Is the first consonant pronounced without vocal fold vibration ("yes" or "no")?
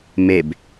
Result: no